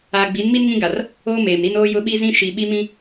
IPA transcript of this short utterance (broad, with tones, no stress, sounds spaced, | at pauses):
aː˨ ɡ͡b i˨˦ n m i˦ n ŋ ĩ˦ ɡ a˨ r | oː˦ m eː˨ m ɾ i˦ n oː˦ j ʊ˦ ɓ i˦ z ĩ˦ ʃ i˨ ɓ i˦ m ĩ˦